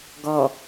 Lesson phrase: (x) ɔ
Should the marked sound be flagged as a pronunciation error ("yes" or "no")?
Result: yes